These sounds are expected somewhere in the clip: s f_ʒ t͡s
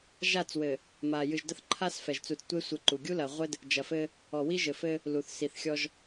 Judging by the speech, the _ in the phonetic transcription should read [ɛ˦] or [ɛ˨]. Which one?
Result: ɛ˨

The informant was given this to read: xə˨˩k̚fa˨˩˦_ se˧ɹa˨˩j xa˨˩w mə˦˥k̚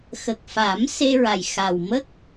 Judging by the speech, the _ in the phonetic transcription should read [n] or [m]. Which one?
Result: m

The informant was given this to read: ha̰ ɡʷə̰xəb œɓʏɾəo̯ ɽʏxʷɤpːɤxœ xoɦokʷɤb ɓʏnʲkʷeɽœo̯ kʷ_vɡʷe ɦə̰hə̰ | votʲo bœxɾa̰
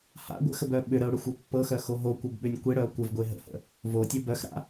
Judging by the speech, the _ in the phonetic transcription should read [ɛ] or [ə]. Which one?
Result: ə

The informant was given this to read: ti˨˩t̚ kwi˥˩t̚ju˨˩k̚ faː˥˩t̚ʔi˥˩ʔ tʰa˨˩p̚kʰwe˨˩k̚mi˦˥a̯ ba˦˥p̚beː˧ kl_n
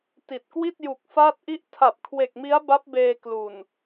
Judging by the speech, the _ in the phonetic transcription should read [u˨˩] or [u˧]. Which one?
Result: u˨˩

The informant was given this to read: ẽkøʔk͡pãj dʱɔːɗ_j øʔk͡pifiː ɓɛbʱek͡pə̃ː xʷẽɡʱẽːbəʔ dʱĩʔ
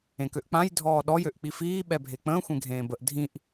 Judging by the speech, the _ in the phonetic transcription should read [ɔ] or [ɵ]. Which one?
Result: ɔ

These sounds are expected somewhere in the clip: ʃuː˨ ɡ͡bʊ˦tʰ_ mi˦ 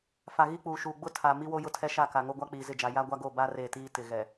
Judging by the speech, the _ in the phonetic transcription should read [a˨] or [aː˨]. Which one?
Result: a˨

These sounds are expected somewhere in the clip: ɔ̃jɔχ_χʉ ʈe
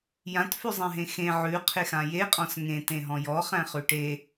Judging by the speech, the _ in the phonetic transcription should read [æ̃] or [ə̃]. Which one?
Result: æ̃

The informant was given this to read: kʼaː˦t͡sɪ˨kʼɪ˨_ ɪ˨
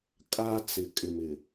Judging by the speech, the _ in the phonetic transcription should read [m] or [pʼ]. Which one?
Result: m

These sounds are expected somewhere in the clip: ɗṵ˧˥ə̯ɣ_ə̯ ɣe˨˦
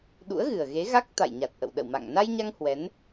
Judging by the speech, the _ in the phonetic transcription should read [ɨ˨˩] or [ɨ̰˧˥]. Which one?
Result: ɨ˨˩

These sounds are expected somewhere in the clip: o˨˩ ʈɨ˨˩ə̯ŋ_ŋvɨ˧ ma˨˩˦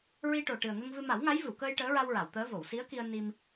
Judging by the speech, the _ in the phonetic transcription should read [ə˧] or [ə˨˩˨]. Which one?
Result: ə˧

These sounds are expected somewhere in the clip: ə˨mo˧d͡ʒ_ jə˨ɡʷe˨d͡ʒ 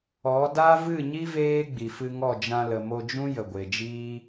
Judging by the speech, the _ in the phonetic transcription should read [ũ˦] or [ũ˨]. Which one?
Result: ũ˦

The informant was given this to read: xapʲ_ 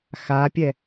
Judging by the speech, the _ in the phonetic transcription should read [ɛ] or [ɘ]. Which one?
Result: ɛ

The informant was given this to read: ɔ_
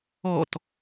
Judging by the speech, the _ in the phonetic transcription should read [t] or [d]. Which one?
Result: t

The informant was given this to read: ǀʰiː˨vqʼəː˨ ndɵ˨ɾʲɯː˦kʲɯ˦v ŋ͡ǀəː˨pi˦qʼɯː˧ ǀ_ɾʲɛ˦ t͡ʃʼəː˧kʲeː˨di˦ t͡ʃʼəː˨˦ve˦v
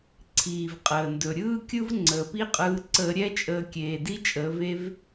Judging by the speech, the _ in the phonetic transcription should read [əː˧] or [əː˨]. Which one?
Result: əː˧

